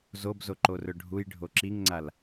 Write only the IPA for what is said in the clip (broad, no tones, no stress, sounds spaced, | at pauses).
z o b z o ǃ o r ɵ ɖʱ u j ɖʱ o ǁ i ŋ ŋ͡ǀ a l